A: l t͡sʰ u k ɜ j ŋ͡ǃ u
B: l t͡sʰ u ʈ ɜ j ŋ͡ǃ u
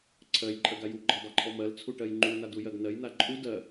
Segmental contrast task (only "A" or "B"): B